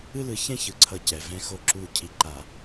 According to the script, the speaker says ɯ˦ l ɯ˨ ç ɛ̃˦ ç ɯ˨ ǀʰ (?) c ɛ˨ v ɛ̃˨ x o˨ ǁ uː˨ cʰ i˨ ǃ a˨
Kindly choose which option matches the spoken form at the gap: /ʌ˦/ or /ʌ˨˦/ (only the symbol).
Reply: ʌ˨˦